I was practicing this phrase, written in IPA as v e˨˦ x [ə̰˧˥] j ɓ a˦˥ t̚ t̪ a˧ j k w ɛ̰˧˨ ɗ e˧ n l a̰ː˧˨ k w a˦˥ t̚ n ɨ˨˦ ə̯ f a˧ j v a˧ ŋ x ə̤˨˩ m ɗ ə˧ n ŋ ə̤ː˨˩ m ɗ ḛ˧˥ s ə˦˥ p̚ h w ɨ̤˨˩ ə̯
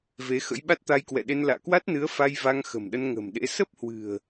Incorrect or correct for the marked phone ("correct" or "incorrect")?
correct